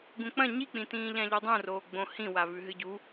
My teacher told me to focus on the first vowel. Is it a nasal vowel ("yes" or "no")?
yes